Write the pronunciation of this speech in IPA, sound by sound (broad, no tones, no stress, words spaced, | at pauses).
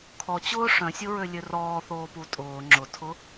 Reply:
kʰɔt͡ɕʊː ʂœ̃sʲʊɹølʲø rɔːθoːpu tʼʊː ŋ͡ǁʊtʰʊ